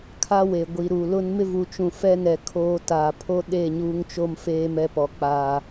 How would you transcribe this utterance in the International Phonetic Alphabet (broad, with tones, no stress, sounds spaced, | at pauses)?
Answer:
kʰ a˦ w e˨ ɡʷ i˨ ɾ u˨ l ʊ˦ n m ɪ˦ v u˨ t͡ʃ ũ˨ f ɛ˦ n ɛ˨ kʰ oː˦ t aː˨ pʰ o˦ ɗ e˦˨ ɲ uː˦ ŋ t͡ʃ o˦ m f eː˦ m ɛ˦ p ɔ˨ k͡p aː˨